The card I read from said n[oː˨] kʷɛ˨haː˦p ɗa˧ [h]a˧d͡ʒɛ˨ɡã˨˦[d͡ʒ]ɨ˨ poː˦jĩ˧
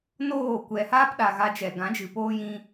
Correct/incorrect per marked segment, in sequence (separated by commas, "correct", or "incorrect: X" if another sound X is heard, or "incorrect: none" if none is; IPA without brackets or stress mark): incorrect: oː˦˨, incorrect: ɣ, correct